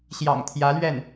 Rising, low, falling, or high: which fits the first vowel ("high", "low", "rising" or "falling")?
low